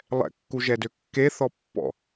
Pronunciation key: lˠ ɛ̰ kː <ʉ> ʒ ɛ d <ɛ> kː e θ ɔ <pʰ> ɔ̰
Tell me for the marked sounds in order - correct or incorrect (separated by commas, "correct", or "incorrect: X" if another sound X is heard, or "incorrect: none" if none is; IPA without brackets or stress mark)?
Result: incorrect: u, incorrect: ø, incorrect: pː